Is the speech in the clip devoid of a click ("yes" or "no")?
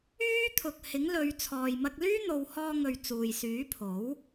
yes